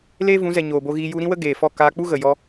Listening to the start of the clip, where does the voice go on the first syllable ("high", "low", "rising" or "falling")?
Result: high